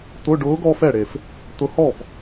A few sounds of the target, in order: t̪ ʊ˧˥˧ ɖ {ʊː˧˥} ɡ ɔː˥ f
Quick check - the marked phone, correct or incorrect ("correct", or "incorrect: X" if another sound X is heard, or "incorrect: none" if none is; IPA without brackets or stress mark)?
correct